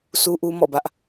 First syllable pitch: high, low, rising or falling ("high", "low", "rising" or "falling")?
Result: high